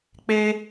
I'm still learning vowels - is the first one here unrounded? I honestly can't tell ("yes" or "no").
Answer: yes